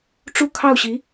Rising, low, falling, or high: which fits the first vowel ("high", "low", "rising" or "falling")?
high